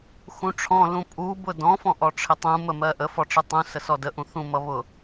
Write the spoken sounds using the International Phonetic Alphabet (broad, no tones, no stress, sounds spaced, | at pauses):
x ũ ʈ͡ʂʰ ɔ̃ l ũ pʼ u b ʊ d ɔ̃ f ɔ̃ ʔ ɔ ʈ͡ʂʰ ɪ tˤ ũ m ə m ɜ ʔ ə f ɔ ʈ͡ʂ ə tˤ ũ s ə s ɔ d ə ʔ ũ θ ũ m ʌ β ʊ